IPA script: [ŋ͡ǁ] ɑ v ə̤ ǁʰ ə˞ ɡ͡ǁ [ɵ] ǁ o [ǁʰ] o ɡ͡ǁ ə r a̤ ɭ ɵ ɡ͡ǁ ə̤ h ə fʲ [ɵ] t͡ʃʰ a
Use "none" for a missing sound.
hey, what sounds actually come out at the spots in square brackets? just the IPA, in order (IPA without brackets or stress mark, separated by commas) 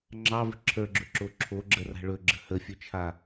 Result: ŋ͡ǁ, ɵ, ǁʰ, ɵ